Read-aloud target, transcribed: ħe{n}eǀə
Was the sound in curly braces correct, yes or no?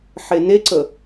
yes